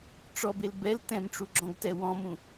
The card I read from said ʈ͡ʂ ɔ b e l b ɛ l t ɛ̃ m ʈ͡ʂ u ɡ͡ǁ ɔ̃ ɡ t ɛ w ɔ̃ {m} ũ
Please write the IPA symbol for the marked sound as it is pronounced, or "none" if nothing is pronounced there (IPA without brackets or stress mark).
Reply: m